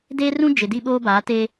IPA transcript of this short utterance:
deː˦rũ˦ d͡ʒɪ˨di˦ɓoː˦baː˨˦ teː˦

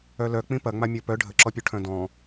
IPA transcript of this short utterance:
œlœk͡pĩ pɐŋ͡ma mʲɔpœ ɖʱəǁɔpʲu ʈʰœ̃dɔ̃

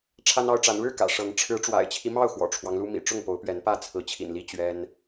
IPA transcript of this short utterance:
ʈ͡ʂʰa˦nɑ˦ʊ̯ʈ͡ʂa˨˦n ɻɻ̩˥˨ kä̰˨˩ʂɤ˨˦ŋ ʈ͡ʂʰɻ̩˨˦ ʈ͡ʂwa̰˨˩ɪ̯t͡ɕʰi˦mɑ˥˨ʊ̯ xwɔ̰˨˩ʈ͡ʂʰwɑ˦ŋlu˦mḭ˨˩ ʈ͡ʂʊ˥˨ŋpo˨˦ʊ̯pɥɛ˨˦npä˥˨ t͡sʰɹ̩˨˦t͡ɕʰḭ˨˩nli˦ t͡ɕɥɛ˦n

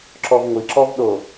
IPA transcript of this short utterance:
ǁɔvŋʷiǁɔv ɗo

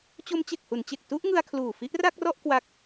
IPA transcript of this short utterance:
t͡ɕo˦˥mt͡ɕe˨˩k̚hu˩˦nt͡ɕe˨˩k̚ tu˥˩ʔŋɯ˧a̯ kʰluː˨˩fi˦˥ʔra˥˩k̚rɔ˥˩ʔ kwa˦˥k̚

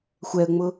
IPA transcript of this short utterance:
xʷɛə̯ŋ͡mʊ

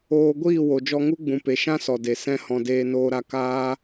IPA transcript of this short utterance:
oː˧ɡʷiː˦˨ wo˨d͡ʒɔ˧ŋu˦ ɡ͡bũ˨pe˨ ʃã˦sɔ˨de˨ sɛ̃˧ hɔ̃˨ deː˧noː˧ɾa˧kaː˦

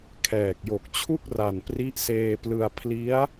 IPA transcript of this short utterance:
kʰɛː˨˩k̚jo˨˩k̚t͡ɕʰu˥˩k̚ra˨˩n pri˦˥ʔseː˧plɯ˧a̯ pʰli˦˥a̯

